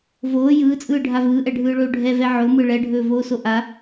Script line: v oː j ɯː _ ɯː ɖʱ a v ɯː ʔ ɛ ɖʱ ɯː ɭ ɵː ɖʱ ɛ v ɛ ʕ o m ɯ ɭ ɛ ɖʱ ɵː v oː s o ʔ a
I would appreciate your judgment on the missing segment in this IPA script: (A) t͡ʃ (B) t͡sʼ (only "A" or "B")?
B